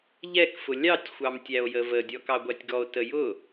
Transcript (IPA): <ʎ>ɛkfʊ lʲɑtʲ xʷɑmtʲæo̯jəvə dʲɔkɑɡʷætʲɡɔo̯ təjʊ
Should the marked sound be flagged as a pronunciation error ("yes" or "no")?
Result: no